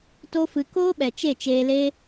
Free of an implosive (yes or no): no